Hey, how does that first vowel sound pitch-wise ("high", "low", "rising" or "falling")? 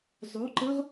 rising